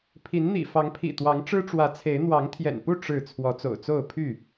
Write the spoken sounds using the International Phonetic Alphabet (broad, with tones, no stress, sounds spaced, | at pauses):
pʰ i˨˦ n n̪ ḭ˨˩ f ɑ˨˦ ŋ pʰ ḭ˨˩ t̪ w ɑ˨˦ ŋ ʈ͡ʂ ɻ̩˦ ʈ͡ʂ w ä˨˦ t͡sʰ e˨˦ ɪ̯ n̪ w ɑ˨˦ ŋ t̪ʰ j ɛ̰˨˩ n p u˥˨ ʈ͡ʂ ɻ̩˥˨ t͡sʰ w ɔ˨˦ t͡s o̰˨˩ ʊ̯ t͡s o˥˨ ʊ̯ pʰ y˥˨